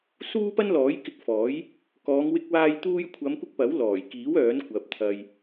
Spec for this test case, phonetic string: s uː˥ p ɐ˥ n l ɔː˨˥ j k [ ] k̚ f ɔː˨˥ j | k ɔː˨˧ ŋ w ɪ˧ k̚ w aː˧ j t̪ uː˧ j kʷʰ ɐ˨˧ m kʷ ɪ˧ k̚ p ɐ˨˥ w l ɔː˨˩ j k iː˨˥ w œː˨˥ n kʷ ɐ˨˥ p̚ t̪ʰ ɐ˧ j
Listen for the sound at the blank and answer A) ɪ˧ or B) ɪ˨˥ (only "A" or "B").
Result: A